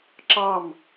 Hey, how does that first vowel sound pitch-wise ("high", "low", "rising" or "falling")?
falling